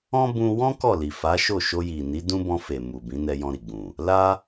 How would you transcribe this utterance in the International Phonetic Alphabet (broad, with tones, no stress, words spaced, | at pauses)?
ɔ̃˦ bũ˧wɔ̃˦ kɔ˦˨li˨fa˨˦ʃo˦˨ ʃo˧ji˨ni˨˦ dũ˦bɔ̃˧fe˨ mu˨bĩ˨˦ nɛ˧jɔ̃˧ ɾi˨ɡ͡bũ˨ | la˦